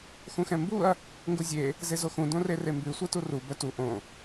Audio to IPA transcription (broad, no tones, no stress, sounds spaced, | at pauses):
x ũ x ɛ̃ m b u ɐ̯ | ŋ ɡ u zʲ e | z e z o x ũ d õ r e r e m b ʉ sʷ ɛ t u r u b œ t u ʔ õ